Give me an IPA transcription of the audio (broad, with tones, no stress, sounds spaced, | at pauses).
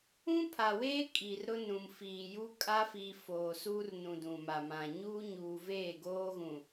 ũ˦ pʰ a˨ w eː˦ kʼ iː˨ r ɾ ʊ˦ n ũ˨ m f iː˨ j u˦ kʼ a˦ f i˨ f oː˨ s uː˦ r n ũ˨ d ũ˨ m a˨ m ã˨ ɲ uː˦ ɲ uː˨ v eː˦˨ ɡ oː˦ ɣ ũ˨